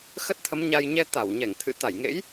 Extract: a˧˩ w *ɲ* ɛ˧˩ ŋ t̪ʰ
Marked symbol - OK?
yes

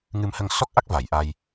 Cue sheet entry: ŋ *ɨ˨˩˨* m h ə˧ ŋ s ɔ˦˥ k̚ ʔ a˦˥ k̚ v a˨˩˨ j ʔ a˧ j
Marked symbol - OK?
no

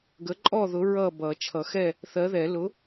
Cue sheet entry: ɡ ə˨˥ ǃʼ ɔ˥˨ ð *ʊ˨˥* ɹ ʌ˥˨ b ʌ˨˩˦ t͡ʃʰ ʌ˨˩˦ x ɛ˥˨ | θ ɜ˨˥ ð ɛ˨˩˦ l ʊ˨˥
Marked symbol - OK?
yes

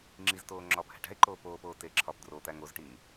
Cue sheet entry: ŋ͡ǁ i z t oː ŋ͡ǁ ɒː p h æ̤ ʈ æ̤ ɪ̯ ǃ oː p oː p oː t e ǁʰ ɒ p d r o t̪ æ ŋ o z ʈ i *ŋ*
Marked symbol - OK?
yes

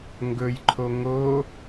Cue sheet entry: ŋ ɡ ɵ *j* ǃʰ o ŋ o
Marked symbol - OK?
yes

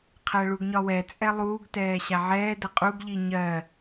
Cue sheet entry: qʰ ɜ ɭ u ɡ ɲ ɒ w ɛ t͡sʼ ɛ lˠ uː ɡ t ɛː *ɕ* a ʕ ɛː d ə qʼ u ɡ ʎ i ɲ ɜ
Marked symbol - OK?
yes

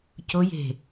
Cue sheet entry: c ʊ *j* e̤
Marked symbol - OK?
yes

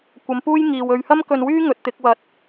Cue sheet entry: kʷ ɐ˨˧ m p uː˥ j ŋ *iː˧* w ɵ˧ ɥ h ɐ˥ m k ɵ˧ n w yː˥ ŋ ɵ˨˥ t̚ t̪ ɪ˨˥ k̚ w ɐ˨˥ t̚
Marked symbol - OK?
no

